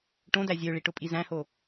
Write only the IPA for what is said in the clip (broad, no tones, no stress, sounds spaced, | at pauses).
ʈ õ d æ zʲ ø ɭ i ʈ ʊ pʼ i z æ̃ h o